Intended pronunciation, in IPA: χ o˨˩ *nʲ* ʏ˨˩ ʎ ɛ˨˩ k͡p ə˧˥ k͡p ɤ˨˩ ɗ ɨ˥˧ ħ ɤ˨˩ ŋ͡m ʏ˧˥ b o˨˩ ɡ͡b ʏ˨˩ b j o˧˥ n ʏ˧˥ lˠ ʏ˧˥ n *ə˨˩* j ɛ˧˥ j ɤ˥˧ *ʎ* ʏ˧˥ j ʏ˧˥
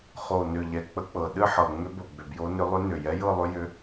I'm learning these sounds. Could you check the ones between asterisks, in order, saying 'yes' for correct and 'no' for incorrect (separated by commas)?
no, no, no